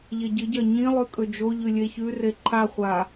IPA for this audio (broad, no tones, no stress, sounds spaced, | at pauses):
ʎ e ɟ ɨ ɟ ɐ ɲ ĩ lˠ ʉ kʼ ɵ d͡ʒ o ʎ ʉ lʲ e ç ʉ r e ǃʰ a χʷ a